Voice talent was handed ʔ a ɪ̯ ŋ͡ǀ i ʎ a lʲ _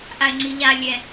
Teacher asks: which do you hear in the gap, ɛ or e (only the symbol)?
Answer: ɛ